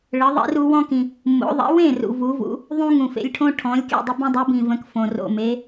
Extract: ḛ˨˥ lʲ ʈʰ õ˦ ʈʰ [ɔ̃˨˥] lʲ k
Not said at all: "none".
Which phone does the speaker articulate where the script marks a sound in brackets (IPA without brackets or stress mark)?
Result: ɔ̃˨˥